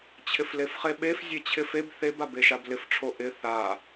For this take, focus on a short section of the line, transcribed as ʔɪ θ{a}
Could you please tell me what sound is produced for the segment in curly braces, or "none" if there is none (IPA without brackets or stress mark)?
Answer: a